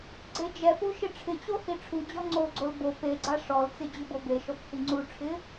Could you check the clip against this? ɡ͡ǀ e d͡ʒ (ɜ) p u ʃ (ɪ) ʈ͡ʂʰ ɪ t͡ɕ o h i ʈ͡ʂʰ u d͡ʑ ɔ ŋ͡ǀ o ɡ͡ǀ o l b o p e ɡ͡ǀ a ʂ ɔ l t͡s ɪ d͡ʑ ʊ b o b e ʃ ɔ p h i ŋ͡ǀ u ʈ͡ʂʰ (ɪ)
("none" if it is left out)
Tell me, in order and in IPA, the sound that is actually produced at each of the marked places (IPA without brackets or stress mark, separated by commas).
ɛ, ɪ, ɪ